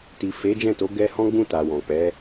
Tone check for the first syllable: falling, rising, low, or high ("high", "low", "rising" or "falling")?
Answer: low